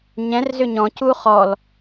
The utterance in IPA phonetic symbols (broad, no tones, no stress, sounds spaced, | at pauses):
ɲ ɛ̃ r z ʏ ɲ ɔ̃ c u χ ɔ l